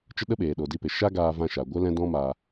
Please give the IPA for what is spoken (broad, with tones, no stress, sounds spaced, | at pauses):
t͡ʃ ə˦ ɗ ə˦ ɓ eː˨ ɗ o˨ d i˧ p e˨ ʃ a˦ ɡ aː˧ v ã˧ ʃ a˨ ɡʷ ə˦ l ɛ̃˦ d ɔ̃˦ m a˧